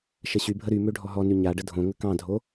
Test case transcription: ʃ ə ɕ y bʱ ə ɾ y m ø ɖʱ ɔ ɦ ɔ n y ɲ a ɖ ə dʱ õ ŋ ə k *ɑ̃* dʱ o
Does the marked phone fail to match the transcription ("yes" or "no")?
no